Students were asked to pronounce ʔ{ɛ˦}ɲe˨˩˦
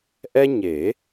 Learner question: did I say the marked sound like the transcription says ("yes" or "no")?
yes